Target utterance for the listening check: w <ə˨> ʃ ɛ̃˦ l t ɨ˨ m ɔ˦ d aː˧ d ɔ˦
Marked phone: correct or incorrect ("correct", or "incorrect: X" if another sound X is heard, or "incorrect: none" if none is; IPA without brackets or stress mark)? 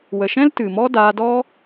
correct